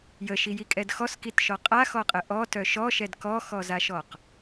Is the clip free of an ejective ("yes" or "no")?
no